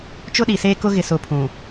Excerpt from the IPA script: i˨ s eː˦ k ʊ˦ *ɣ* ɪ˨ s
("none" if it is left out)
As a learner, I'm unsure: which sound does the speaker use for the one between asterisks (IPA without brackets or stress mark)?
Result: ɣ